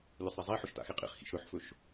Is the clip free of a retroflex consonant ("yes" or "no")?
yes